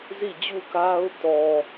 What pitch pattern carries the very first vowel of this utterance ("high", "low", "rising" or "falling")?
falling